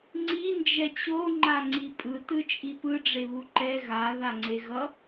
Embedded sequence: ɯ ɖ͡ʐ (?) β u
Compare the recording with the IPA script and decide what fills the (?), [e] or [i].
e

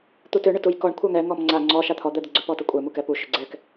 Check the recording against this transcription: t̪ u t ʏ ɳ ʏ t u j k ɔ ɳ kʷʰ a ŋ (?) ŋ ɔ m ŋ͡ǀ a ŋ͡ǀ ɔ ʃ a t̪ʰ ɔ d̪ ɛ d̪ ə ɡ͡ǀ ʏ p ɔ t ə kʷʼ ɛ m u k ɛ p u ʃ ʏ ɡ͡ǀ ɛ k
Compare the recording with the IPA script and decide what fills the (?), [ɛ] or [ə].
ɛ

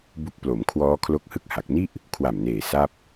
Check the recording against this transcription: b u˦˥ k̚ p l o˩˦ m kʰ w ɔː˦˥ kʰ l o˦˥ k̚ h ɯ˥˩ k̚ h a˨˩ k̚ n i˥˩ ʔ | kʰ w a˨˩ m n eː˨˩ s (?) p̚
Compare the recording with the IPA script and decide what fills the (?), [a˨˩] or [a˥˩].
a˥˩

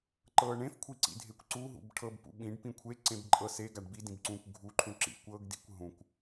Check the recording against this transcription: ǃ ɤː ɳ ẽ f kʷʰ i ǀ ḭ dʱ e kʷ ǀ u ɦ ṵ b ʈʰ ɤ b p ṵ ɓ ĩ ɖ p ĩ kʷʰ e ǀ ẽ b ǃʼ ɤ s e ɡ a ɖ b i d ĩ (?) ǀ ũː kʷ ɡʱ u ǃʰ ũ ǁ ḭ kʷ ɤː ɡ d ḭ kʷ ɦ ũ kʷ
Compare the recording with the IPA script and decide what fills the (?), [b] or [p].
b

